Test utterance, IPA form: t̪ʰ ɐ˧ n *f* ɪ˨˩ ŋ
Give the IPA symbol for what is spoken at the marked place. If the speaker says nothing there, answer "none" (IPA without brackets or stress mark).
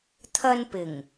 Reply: p